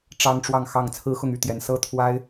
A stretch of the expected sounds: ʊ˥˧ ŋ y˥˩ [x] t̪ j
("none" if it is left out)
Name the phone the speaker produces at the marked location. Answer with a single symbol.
none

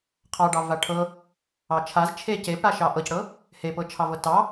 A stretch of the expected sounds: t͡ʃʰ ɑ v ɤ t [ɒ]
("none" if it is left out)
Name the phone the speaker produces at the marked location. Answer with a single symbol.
ɑ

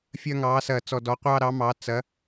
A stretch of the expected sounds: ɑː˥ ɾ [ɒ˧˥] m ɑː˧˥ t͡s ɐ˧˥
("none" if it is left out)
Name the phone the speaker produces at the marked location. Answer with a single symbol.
ɑ˧˥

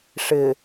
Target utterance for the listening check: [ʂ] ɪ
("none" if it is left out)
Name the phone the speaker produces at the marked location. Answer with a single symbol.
ʂ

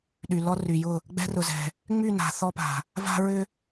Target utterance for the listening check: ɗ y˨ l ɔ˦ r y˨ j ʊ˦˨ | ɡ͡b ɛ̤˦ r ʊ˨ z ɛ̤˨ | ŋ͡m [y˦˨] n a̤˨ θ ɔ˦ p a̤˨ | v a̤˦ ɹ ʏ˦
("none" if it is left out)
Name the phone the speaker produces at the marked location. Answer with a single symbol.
y˦˨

